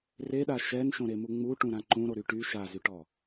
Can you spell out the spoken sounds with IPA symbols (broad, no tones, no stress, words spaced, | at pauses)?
reɗa ʃɛnʃõɾemu ŋ͡muʈũɾã ǃũɾoɾy ʈy ʃazyʈɔ